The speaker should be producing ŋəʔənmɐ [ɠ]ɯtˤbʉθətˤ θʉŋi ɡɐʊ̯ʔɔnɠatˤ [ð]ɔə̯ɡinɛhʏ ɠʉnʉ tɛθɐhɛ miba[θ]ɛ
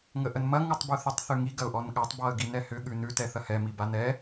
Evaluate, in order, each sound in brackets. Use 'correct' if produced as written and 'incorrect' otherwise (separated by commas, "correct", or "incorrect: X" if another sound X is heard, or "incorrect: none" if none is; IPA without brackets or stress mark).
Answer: incorrect: ŋ, incorrect: b, incorrect: n